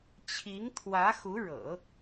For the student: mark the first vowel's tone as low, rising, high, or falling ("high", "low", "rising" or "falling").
rising